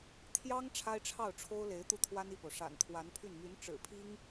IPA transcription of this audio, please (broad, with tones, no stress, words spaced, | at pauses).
t̪ʰjɑ˥ŋ ʈ͡ʂʰa˥ɪ̯ʈ͡ʂʰɑ˥˩ʊ̯ ʈ͡ʂʰo˥ʊ̯le˧˥ɪ̯ t̪u˥˩t̪ʰwa˥ni˥˩po˩ʊ̯ ʂa̰˨˩nt̪ʰwa˧˥npʰy˥˩n my˧˥n ʈ͡ʂɻ̩˨˩pʰi˥ŋ